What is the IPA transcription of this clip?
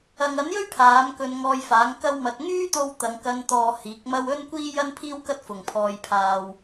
ɐ˨ ŋ ɐ˨˥ n j ɵ˥ ɥ pʰ aː˨˥ m k ɵ˧ n ŋ ɔː˧ j f aː˨˥ ŋ k ɐ˥ w m ɐ˧ t̚ ŋ yː˥ t̪ o˧ w t̪ ɐ˨˧ ŋ k ɐ˧ n t̪ ɔː˨ h iː˨˥ k̚ m ɐ˥ w ɵ˥ n kʷ iː˥ j ɐ˥ n pʰ iː˥ w k ɐ˥ t̚ f ʊ˨ ŋ pʰ ɔː˧ j pʰ aː˧ w

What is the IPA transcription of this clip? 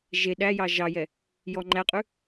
ʒ e ɗ æ j ɑ ʒ ɑ j ɛ | j ɔ ŋ͡ǃ æ qʼ ʉ

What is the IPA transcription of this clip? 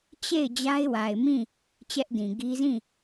t͡ɕ e˦˨ ɪ̯ d͡ʑ a˦ ɪ̯ w a˨ ɪ̯ m ĩ˦˨ | t͡ɕ ɛ˦ ʔ d ĩ˨ ɡ i˦ z ĩ˦˨

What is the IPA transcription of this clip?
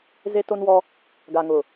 z e˦ t o˦ n w ɔ˦ | ɡ a˨ ŋ ʊ˨

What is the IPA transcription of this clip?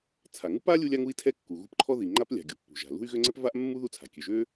t͡sʰ a˩ ŋ u˥ p a˥ lʲ u˥ lʲ a˥ ŋ u˥ i̯ tʰ ɛ˥ kː u˩ ɣ ṳ˥ p ǃʰ ɔ˥ ð i˩ ŋ͡ǃ a˥ p lʲ a̤˩ ɡʲ u˩ pː ṳ˩ ʒ a̤˩ l ṳ˥ y̯ ɣ ø˥ ŋ͡ǀ ɛ˥ p v a˥ ʔ mː u˥ ð u˥ t͡sʰ a̤˩ kʲ ø˩ ʒ ø˥

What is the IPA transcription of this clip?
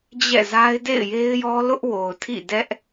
d͡ʑ ɛ̰˦˨ z a˦ ɪ̯ d ḛ˦˨ ɪ̯ j e˦ ɪ̯ j ɔ˦ l ʊ˦ ʔ w o˨ ʊ̯ tʰ ḭ˦˨ d ɛ˦ ʔ

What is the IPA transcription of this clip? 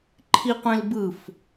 ǃʰ i qʷ ẽ l b ɯ f

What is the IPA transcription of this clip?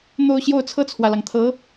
n̪ o˥˧ ʊ̯ ɕ j o˥˧ ʊ̯ t͡sʰ ɤ˥˩ t͡sʰ w ä˩ l ɑ˩ ŋ t̪ʰ ɤ˧˥

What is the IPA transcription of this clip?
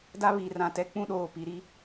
d a˦ β i˨ r ã˨ t ɛ˦ k͡p ũ˦ ɗ oː˨ p i˨ ɾ i˦

